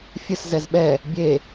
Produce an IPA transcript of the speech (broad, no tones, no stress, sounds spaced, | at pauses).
fʲ ɨ s z ɛ z ɓ ɛ | bʲ e